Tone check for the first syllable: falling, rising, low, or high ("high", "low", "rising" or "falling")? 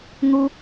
high